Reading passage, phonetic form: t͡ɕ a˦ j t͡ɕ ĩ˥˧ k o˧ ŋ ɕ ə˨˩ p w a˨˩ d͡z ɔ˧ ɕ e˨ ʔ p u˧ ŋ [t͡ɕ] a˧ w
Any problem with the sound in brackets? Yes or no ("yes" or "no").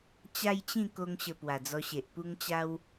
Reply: no